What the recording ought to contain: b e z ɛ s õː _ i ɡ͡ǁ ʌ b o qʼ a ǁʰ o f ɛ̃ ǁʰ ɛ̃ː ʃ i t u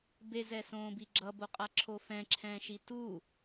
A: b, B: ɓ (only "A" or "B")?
A